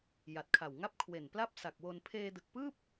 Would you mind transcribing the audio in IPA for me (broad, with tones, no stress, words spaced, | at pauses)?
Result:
ja˨˩t̚kʰa˨˩wŋa˥˩p̚ kʰwe˨˩npla˥˩p̚ sa˨˩k̚wo˧n pʰeː˧dɯ˨˩k̚pɯː˥˩p̚